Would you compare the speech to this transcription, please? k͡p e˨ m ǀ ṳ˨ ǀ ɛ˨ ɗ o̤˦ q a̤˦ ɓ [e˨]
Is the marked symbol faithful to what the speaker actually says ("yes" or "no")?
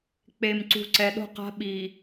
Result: no